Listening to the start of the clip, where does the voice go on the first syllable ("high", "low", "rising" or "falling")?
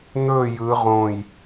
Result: falling